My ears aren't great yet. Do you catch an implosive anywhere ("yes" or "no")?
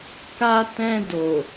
no